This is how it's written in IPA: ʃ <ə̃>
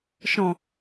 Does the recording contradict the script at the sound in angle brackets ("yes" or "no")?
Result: yes